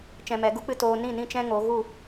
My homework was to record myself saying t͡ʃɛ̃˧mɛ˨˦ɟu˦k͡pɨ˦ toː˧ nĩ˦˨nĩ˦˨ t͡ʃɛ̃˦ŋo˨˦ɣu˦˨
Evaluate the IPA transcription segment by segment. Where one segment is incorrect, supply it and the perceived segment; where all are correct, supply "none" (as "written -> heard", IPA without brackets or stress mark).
ɟ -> ɡ